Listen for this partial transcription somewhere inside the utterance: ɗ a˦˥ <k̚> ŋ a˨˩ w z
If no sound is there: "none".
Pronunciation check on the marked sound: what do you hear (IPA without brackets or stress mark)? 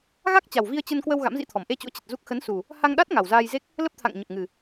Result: t̚